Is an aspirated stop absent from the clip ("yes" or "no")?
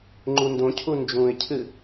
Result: no